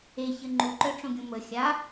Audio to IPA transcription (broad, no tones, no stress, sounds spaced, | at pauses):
e ç ə ŋ͡ǃ u ǃ œ ʈ͡ʂ õ ɡʲ õ m ə xʲ a